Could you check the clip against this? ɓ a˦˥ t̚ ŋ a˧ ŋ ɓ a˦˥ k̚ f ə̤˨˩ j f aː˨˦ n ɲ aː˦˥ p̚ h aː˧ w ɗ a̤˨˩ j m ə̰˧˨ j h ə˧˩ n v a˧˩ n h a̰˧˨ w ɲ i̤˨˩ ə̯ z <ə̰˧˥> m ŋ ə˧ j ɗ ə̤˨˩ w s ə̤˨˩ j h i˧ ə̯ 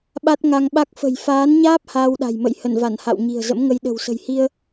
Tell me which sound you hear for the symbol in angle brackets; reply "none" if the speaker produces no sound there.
ə̰˧˥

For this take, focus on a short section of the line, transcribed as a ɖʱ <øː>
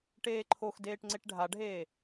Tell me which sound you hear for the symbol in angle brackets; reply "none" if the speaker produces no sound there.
eː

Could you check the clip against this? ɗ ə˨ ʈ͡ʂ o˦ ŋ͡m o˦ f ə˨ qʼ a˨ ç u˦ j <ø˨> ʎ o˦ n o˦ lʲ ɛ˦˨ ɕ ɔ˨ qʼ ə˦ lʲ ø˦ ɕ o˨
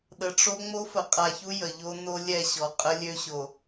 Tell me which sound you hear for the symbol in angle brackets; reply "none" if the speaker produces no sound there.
ə˨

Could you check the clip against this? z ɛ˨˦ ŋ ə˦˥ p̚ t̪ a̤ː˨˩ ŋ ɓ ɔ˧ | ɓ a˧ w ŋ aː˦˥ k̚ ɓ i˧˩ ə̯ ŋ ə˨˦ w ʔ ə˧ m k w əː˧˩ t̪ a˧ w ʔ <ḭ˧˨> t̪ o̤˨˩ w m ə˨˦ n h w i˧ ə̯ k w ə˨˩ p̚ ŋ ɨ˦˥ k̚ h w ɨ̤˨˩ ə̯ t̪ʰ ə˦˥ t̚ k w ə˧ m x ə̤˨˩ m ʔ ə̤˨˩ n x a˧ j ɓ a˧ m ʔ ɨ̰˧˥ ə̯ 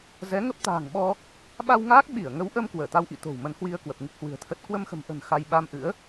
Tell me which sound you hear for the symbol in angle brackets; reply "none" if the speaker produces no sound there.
ḭ˧˨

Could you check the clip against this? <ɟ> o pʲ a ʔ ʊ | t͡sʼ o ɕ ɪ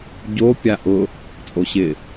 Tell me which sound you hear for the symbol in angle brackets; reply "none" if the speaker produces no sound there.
ɟ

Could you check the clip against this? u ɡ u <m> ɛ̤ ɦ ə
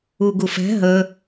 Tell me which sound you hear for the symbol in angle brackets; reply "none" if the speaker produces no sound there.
f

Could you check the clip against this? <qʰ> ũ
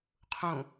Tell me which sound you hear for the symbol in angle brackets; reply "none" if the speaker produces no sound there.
qʰ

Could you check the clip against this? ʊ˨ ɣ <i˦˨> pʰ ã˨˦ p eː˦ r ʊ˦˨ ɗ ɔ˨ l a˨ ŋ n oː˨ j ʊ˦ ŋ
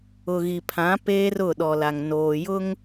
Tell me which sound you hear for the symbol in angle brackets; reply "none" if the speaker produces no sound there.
i˨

